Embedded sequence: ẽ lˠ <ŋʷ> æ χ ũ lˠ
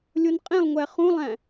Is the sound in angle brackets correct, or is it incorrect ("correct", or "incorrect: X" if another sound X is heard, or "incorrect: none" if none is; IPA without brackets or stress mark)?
correct